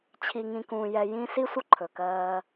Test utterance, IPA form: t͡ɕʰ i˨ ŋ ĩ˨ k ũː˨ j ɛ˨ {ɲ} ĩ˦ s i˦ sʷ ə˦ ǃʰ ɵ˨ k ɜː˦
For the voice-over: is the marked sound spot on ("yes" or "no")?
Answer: no